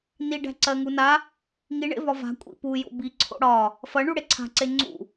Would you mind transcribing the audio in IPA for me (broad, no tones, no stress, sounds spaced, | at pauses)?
n i ɖ æ̤ ǀ ɜ ŋ u n a | ŋ i ɳ ḛ v ɒ v a̤ kʷʼ ḭ p u j o̰ b i ǀʰ o̰ ɽ ɒ | f ɐ ɳ u ɽ e ǀʰ a̤ ǀ e ŋ͡ǀ ṵ